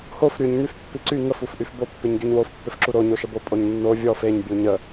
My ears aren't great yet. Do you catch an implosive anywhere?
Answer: no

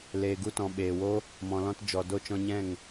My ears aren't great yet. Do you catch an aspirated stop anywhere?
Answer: no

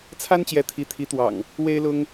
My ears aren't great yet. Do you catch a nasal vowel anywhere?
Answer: no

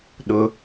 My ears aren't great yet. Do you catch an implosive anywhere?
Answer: yes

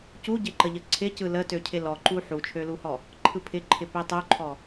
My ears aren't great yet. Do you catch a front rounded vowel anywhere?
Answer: yes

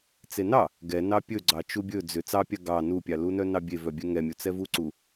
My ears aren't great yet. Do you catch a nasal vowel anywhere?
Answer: no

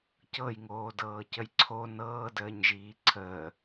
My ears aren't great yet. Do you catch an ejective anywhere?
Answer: no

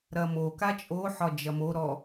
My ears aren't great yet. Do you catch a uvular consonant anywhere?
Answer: no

